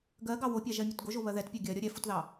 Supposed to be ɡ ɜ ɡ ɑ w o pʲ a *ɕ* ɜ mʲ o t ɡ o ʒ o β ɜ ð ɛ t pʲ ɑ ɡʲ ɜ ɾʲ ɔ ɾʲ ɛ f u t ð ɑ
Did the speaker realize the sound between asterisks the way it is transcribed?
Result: no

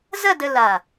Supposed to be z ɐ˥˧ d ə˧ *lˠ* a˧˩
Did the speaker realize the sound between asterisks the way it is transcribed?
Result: no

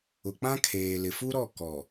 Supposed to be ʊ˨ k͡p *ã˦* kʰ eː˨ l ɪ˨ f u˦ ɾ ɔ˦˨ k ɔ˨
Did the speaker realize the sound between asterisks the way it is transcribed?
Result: yes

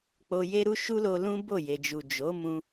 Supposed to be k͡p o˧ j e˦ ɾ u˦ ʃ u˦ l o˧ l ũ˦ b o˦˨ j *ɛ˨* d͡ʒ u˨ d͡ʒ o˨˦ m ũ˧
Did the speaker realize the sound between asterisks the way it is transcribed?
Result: no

